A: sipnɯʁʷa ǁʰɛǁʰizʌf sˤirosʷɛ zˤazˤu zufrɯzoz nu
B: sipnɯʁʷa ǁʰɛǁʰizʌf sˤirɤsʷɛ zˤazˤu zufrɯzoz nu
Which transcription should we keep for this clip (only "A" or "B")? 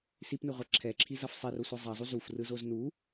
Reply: A